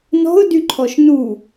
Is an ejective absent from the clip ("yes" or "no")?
yes